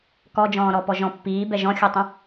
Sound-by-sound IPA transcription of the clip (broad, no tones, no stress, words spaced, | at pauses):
kɔd͡ʒɔ̃ːɾɔpɔ ʒɔ̃pːiː bɛʒɔ̃xʲutˤə̃